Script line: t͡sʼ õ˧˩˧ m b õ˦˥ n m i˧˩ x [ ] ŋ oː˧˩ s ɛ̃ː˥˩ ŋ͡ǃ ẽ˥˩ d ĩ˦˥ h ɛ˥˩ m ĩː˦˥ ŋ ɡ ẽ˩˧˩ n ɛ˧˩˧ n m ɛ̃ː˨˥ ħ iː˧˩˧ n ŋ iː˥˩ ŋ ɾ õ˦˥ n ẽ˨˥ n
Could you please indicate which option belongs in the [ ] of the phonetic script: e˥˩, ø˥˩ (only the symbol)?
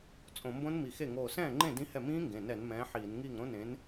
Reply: e˥˩